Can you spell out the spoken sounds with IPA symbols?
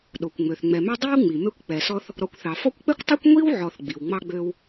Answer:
ɗ o˩ kʷ ŋ͡m ø˩ θ ŋ͡m ɛ˨ m ø˥ dˤ i˥ w ŋ͡m i˩ m ø˦ kʷ k͡p ɛ˨ s ɔ˥ θ | ɾ ɔ˨ kʷ θ ɑ˩ f ɔ˦ kʷ k͡p ɛ˥ kʷ tˤ ɛ˥ kʷ ŋʷ i˥ w ʕ ɔ˨ θ ɡ͡b i˩ w ŋ͡m ɑ˥ ɡ͡b ø˥ w

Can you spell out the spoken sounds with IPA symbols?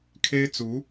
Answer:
kʰ e˥ ɪ̯ t͡s u˧˥

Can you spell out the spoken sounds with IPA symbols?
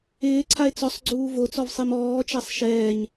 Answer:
ɪː ǀʰ a e̯ t͡s ɔ sˤ ɡ͡ǀ uː v o t͡s ɔ v sˤ i m ɔː t͡ʃ a sˤ ʃ ɛː ɲ

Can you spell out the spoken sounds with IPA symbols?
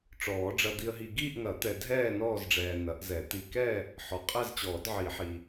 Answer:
ʈ͡ʂ ɔː˨˩˦ ɖ͡ʐ ɐ˨ d̪ i˨ ə̯ ɦ i˨ ɡ iː˦˨ ʔ ŋ ɐ˨˩˦ t̪ ɛ˨ dʱ ɛː˦˨ n ɔː˦˨ z ɖ͡ʐ ɛː˨ n ɐ˨˩˦ ʔ z ɛ˨˩˦ t̪ i˨ k ɛ˦˨ | ħ ɔ˨ qʼ ɛ˦˨ z t͡ɕ ɔː˨˩˦ d ʕ i˨˩˦ ħ i˨

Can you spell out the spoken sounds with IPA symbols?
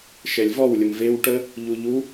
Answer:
ʃ ɛ lʲ v ɔ w lʲ ə m v e w ʈ ə | ʎ u ʎ u

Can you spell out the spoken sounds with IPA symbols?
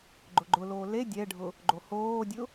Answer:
ɡ͡ǃ ʊ ɡ͡ǃ ʊ l oː l e dʲ ɛ ɖʱ ʊ | ɡ͡ǃ o h oː dʲ ʊ

